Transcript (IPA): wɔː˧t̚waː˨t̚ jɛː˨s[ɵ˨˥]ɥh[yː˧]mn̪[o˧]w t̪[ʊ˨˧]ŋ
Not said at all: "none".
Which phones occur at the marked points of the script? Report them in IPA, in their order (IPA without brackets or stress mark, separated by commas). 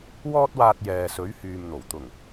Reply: ɵ˨˥, yː˨, o˨˩, ʊ˨˩